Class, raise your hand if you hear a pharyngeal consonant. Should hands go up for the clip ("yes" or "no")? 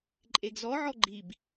yes